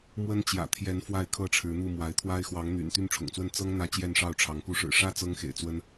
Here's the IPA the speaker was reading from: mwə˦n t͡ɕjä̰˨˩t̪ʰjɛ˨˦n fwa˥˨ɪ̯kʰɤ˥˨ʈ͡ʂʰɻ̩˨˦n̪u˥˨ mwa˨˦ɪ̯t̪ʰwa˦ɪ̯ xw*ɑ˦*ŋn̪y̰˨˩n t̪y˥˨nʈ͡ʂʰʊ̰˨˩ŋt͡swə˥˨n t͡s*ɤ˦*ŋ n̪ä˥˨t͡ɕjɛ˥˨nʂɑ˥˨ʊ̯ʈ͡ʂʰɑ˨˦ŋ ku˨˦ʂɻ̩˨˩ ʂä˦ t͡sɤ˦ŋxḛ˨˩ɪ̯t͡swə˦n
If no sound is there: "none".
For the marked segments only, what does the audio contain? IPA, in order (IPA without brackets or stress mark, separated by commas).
ɑ˨˦, ɤ˦